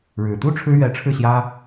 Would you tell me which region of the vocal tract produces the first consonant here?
retroflex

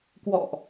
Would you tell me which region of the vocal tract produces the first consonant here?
velum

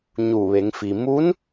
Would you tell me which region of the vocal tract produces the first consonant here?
palate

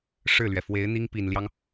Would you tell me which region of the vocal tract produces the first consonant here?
retroflex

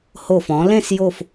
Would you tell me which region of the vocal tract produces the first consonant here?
throat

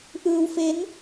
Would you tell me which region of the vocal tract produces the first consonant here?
throat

